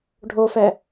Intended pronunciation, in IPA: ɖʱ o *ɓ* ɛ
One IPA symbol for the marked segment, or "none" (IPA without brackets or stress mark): f